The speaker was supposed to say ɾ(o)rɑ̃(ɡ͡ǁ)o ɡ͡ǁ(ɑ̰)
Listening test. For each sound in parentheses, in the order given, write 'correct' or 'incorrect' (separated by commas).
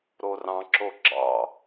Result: correct, incorrect, correct